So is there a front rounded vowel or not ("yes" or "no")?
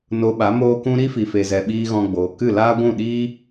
no